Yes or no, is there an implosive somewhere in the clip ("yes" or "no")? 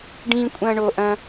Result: no